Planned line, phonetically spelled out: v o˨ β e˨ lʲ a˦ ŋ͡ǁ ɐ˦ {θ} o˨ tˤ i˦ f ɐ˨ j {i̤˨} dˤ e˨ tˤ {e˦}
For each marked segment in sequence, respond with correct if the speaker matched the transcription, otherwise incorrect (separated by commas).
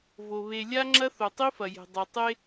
correct, incorrect, correct